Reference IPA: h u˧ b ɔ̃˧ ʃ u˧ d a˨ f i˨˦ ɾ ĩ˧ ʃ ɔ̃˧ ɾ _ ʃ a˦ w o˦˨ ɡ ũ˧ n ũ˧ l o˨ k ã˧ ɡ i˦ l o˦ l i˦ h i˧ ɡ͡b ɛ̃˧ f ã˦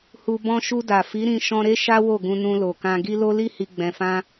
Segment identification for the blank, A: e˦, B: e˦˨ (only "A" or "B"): A